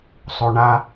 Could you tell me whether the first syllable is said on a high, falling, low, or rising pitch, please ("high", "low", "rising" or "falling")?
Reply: low